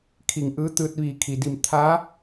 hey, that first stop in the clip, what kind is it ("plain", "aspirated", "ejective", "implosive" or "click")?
aspirated